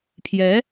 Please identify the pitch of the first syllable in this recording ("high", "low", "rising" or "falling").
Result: rising